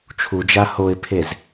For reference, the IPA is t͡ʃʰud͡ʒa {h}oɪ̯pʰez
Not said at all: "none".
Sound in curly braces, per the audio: h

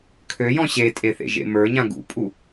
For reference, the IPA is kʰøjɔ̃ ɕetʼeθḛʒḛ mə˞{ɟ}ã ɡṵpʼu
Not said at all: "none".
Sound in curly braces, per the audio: ɲ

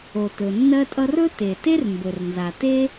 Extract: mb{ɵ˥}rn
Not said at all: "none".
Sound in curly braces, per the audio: ɵ˩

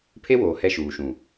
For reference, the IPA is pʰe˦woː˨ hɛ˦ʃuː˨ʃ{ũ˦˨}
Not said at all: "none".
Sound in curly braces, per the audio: ũ˨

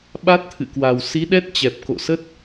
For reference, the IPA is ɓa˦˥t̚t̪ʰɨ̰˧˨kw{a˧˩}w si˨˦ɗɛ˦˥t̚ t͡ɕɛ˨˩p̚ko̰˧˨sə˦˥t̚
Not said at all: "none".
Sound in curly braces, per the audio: a˨˩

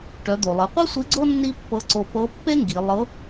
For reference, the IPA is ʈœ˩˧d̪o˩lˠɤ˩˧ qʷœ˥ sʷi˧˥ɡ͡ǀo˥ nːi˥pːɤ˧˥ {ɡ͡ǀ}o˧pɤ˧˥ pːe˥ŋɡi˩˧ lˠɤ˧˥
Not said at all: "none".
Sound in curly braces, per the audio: ǀ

